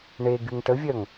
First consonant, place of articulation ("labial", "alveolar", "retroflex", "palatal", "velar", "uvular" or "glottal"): retroflex